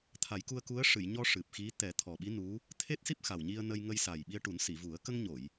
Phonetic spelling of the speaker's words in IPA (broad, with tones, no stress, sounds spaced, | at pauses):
t̪ʰ a˨˩˦ j k u˧ ə̯ k u˧˥ ə̯ ʂ ɨ˨˩˨ j ɲ ɔ˧ ʂ ɨ˨˩ p̚ x i˧˥ t̪ ɛ˨˩˦ t̪ʰ ɔ˨˩ ɓ i˧˥ n u˧˥ | t̪ʰ e˦˥ t̚ s i˦˥ p̚ x a˨˩ w ɲ i˧ ə̯ n ə˧ j ŋ ə˧ j s a˨˩ j ɓ i˧ ə̯ ʈ u˨˩˦ n s i˨˩˨ v u˨˩˦ ə̯ k ə˧ ŋ ɲ o˨˩˨ j